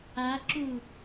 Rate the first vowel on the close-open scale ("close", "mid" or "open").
open